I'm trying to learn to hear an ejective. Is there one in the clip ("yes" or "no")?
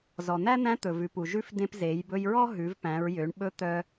no